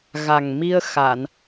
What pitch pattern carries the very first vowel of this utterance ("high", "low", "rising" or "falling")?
low